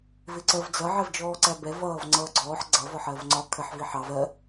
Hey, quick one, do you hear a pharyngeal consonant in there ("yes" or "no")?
yes